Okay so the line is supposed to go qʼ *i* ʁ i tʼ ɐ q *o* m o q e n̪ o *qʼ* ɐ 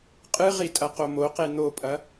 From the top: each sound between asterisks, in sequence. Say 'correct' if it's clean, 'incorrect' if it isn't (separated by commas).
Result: incorrect, correct, incorrect